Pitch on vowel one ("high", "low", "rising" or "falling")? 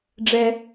high